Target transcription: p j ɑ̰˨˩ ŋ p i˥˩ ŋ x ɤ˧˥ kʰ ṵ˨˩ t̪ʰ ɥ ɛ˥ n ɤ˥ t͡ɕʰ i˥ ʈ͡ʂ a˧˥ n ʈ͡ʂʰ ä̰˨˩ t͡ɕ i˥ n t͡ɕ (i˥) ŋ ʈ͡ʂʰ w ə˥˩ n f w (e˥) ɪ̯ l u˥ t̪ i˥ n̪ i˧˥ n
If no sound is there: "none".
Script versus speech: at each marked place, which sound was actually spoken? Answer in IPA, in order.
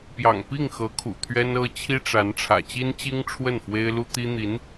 i˥, e˥

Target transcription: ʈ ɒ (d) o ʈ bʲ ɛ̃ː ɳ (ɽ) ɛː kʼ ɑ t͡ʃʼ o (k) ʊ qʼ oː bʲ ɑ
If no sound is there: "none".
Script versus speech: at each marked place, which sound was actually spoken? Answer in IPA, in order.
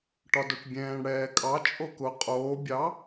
d, ɽ, k

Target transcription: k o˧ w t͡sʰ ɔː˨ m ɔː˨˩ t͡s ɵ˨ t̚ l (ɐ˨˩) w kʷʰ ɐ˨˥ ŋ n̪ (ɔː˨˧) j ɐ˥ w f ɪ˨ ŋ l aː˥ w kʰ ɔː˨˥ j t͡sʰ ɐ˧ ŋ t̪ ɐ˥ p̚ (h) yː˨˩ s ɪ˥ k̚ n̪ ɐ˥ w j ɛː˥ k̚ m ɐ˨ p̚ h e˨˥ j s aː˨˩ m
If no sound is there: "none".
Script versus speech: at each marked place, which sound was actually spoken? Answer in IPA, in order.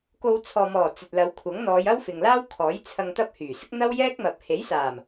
ɐ˨˧, ɔː˨˧, h

